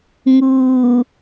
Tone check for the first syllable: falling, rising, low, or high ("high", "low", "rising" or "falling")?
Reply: low